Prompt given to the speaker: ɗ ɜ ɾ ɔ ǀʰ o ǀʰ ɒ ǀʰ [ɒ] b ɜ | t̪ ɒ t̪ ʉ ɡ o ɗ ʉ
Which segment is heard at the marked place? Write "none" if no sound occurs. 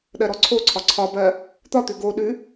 ɒ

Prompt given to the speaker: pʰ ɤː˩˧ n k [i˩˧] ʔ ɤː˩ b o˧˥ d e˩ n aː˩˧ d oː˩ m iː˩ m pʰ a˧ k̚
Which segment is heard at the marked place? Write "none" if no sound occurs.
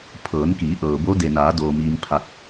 iː˩˧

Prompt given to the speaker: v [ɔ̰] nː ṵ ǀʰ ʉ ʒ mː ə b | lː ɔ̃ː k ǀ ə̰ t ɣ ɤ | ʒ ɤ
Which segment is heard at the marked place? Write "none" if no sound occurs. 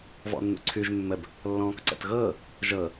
ɔ̰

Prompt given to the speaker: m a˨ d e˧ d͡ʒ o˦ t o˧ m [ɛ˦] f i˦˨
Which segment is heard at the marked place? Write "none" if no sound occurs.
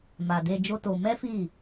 ɛ˦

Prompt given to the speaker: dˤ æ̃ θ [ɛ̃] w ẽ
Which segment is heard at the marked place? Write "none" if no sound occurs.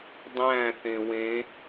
ẽ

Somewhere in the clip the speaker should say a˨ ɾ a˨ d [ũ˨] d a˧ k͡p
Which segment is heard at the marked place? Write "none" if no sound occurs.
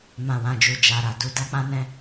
u˨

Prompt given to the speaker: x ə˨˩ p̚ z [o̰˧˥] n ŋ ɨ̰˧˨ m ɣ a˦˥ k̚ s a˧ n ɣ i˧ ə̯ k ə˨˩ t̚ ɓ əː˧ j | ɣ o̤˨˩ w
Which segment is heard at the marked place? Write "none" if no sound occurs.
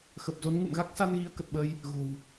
o˨˦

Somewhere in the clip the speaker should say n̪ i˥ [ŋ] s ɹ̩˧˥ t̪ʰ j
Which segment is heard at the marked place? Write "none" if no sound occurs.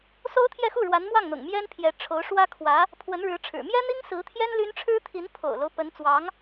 ŋ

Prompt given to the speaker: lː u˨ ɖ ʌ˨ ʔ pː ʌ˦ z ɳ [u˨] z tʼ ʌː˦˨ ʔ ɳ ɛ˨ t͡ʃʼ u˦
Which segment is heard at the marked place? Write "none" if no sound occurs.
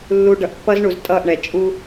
u˨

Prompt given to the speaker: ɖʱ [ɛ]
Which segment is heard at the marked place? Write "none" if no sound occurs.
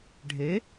e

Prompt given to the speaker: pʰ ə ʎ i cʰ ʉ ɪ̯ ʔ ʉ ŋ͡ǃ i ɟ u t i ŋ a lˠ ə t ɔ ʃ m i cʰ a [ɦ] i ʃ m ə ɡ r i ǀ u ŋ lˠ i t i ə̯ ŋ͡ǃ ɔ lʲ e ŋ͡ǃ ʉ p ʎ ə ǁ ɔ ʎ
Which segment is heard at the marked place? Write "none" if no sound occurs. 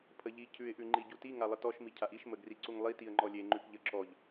ʔ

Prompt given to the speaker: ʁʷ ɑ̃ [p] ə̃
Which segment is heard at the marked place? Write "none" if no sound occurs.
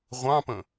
p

